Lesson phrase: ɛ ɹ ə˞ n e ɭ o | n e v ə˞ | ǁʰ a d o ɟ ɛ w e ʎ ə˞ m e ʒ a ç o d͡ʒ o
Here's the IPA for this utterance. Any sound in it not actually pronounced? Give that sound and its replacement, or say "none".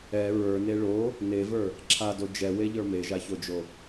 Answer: ɟ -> d͡ʒ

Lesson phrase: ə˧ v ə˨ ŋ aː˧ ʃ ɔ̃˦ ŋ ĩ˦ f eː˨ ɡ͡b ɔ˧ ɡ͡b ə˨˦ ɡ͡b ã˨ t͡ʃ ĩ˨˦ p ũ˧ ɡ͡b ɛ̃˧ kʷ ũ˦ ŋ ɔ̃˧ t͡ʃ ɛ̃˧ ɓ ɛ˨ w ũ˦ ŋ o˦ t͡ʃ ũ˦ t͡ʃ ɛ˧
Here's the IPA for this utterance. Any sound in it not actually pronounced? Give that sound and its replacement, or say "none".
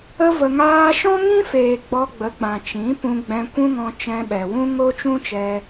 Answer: none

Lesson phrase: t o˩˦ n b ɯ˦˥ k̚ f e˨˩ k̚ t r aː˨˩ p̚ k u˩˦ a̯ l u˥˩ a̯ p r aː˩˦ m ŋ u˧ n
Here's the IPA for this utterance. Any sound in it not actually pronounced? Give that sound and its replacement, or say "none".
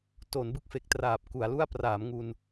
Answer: none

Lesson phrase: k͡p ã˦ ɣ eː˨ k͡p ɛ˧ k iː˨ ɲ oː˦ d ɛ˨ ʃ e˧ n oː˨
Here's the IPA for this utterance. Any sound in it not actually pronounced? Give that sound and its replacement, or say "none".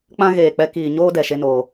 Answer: none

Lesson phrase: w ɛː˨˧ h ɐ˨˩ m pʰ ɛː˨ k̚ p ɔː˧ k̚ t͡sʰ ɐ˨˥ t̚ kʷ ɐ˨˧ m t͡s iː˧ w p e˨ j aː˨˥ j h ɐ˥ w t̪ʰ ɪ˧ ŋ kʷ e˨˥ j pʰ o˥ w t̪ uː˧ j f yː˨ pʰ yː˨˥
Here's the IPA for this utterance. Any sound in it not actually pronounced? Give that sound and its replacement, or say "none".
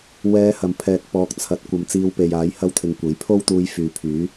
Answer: none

